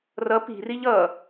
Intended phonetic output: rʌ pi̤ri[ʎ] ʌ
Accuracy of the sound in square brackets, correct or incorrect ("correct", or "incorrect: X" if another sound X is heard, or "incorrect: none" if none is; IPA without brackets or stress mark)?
correct